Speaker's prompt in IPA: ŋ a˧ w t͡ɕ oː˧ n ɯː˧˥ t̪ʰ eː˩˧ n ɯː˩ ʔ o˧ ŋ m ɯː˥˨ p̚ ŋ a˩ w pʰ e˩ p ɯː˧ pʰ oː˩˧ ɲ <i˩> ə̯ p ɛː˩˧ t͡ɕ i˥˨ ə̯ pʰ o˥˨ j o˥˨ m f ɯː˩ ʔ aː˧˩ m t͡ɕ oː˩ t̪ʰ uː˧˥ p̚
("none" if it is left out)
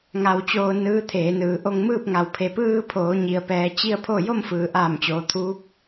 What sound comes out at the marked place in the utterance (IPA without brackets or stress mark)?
i˩